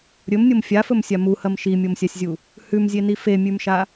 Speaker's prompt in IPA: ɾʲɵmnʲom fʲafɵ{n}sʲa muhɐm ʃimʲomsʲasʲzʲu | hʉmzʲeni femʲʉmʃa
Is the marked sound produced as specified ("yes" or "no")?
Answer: no